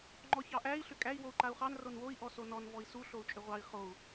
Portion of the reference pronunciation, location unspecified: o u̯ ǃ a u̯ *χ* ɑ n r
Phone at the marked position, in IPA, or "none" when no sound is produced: χ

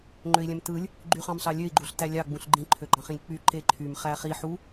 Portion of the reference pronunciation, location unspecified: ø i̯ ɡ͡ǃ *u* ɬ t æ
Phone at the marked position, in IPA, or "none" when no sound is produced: u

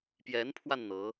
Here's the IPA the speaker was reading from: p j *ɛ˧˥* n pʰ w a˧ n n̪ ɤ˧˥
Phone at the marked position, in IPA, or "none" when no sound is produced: ɛ˧˥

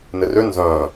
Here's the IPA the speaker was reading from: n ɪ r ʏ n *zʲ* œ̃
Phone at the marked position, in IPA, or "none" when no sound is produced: z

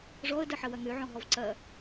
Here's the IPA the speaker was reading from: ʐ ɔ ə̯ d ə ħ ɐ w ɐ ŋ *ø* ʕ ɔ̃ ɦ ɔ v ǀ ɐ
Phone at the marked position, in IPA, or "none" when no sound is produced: ø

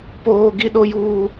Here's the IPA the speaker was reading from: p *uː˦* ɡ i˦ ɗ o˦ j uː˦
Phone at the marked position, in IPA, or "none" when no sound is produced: oː˦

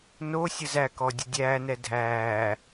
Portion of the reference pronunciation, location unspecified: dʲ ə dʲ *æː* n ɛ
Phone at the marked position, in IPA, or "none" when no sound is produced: æː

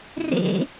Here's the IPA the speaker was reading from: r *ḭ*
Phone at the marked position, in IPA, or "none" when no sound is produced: ḛ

